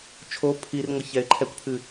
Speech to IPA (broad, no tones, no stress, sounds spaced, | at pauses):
t͡ʃʰ o pʰ i r ŋʷ ɐ ç ɛ ɪ̯ ǃʰ ɛ kʷ pʰ ɨ